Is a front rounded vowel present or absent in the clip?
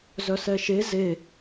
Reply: present